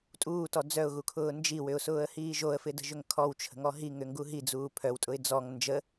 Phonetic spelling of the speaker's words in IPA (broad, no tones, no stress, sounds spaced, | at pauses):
tʼ uː t ɔ d͡z œ ʊ̯ ɣ u kʰ ʊː n d͡ʒ i w ʏ ʊ̯ s ʊː ə̯ h iː ʒ o ə̯ f ɪ d ə̤ ʒ ʏ ŋ kʰ ɔ w t͡ʃʰ ə̤ ŋ ɔ ɦ i ŋ ʏ ŋ ɡ u ɦ i d͡z uː pʰ œ w tʼ ʊ ɪ̯ d͡z ɔ ŋ n d͡ʒ ə